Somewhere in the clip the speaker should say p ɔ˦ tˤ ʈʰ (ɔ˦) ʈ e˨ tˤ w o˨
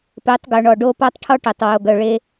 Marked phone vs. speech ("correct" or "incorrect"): correct